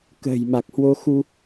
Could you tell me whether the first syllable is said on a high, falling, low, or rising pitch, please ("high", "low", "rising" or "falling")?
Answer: low